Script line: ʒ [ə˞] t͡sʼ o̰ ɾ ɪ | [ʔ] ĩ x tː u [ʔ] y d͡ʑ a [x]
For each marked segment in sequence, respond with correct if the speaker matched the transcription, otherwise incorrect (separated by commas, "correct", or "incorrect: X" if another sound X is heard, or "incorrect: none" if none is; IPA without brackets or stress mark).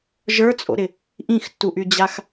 correct, correct, correct, correct